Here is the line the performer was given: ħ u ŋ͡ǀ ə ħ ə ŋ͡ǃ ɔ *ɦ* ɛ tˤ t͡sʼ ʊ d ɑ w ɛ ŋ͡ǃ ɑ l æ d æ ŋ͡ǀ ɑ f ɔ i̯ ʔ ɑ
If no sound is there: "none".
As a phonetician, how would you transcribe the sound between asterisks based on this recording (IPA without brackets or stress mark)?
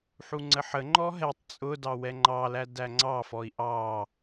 ɦ